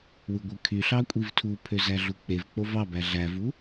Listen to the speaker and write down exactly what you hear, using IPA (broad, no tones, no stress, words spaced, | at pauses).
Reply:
wɯɡʷɯkʰyɬɑ kʷʼivtʰupʰø zæɮuk͡pevk͡pov ɑbæ ɮævu